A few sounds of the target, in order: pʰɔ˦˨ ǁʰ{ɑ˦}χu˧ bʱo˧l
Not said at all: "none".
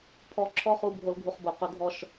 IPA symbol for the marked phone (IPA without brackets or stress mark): ɔ˦